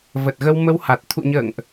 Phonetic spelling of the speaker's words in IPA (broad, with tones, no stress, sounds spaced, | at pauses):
v ə˨˩ t̚ ɣ ə˧ w m ə˧ w h a˨˩ t̚ t̪ʰ ṵ˧˨ ɲ ə̰ː˧˨ ŋ ʔ